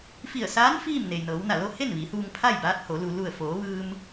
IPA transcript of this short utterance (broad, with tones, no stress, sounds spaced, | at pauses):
f i˧˩ ə̯ s aː˧˥ n f iː˥˨ m n e˩ j n ɤː˩˧ w n a˧˩ l o˥˨ h e˥˨ n ʋ i˩˧ h uː˧ ŋ pʰ a˥˨ j b aː˧˥ t̚ h o˩˧ l u˩ l u˧˩ ə̯ f oː˩˧ ʋ ɯː˧ m